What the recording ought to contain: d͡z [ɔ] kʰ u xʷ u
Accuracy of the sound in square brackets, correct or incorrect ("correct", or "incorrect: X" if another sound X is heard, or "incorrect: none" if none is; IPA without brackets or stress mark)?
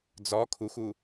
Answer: correct